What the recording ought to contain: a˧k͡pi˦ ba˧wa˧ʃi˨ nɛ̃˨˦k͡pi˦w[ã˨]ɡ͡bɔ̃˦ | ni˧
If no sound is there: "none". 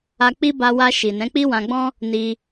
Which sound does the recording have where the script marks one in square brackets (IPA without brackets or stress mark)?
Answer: ã˧